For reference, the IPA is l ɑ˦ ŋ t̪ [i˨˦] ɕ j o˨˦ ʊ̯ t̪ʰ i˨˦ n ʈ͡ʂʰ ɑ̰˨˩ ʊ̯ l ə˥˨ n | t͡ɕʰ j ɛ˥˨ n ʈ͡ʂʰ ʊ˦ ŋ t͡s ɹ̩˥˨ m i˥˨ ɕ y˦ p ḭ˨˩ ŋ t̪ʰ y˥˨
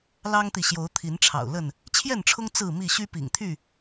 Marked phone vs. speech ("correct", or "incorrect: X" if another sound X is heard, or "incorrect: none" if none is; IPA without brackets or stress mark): incorrect: i˨